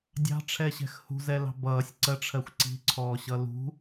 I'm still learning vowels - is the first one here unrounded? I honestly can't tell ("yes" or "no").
yes